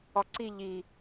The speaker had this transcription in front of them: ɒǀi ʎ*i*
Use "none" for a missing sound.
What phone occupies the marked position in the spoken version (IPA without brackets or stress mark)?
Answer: i